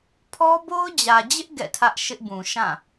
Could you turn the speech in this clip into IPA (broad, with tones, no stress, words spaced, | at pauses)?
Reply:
pʰɔ˦bo˦ʊ̯d͡ʑä˨d͡ʑɪ˦ʔ ɡɛ̰˦˨tʰä˦ʔ ʃɪ˦ʔbũ˨ ʃã˦˨